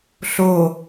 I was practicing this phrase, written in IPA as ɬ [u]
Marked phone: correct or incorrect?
incorrect